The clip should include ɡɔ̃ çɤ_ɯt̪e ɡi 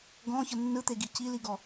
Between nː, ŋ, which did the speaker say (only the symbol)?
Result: nː